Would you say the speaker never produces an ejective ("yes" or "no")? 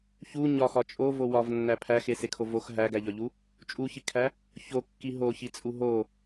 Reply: no